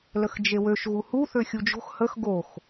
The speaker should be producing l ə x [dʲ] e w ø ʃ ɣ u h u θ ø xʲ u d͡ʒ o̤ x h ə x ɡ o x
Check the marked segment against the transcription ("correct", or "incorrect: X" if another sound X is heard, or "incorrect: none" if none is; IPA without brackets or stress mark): incorrect: d͡ʒ